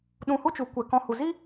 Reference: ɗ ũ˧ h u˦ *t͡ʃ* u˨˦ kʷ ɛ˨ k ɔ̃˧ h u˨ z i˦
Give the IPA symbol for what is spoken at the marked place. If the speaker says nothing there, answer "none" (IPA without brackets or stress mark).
t͡ʃ